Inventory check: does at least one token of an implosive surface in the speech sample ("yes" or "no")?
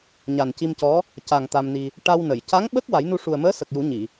yes